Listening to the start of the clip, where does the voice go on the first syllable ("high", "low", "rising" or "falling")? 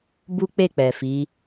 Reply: high